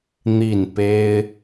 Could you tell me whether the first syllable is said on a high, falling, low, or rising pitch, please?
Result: falling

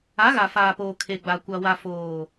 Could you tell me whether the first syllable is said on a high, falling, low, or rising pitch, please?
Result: rising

